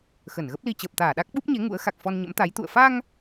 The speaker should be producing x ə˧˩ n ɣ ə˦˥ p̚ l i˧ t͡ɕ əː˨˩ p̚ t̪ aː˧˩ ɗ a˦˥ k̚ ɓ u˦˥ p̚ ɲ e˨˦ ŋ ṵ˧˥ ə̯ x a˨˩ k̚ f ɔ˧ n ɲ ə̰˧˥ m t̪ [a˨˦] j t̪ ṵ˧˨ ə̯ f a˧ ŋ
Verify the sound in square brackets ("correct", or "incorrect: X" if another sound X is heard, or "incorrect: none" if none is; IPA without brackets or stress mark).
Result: correct